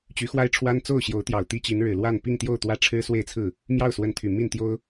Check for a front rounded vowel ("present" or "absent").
present